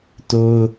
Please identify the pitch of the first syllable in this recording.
high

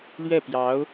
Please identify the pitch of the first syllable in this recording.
falling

